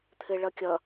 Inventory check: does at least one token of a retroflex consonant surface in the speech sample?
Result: yes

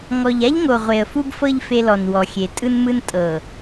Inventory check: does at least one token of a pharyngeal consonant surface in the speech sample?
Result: no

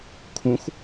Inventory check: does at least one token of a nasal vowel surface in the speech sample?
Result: yes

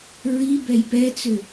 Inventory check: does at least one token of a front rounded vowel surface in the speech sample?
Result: yes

